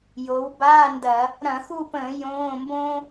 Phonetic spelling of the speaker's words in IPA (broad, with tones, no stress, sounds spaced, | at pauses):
j o˩˧ w b aː˧˥˧ n d ɐ˧˩˧ | ɾ ɐ̃˧˩˧ x u˦˨ p ə̃ː˧˩˧ j õː˧˥˧ m b õ˥